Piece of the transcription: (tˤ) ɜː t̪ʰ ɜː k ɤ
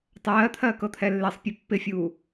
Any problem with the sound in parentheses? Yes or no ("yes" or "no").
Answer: no